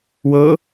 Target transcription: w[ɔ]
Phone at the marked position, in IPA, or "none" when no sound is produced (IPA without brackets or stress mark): ɤ